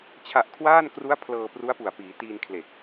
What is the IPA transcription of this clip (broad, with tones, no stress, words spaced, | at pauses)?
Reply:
t͡ɕʰa˨˩ʔ kʰwaː˥˩nkru˦˥a̯ pʰlɤː˧pru˦˥a̯pu˨˩a̯piː˩˦ tiː˧nkʰle˨˩k̚